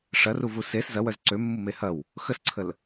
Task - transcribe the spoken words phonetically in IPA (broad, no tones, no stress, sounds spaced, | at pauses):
ʂ ɐ r u v u s e s z ɐ w œ z ǀ ø mː u m e h ɐ w | x ə s ǀʰ ə l